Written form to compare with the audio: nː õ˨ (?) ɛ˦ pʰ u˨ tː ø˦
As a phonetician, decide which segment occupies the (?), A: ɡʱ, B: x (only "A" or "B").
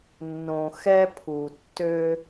B